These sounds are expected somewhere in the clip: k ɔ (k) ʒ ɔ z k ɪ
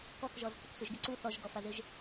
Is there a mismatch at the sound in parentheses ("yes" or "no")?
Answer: no